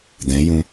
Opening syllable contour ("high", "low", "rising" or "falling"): rising